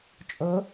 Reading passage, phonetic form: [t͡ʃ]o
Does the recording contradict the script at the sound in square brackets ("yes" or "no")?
yes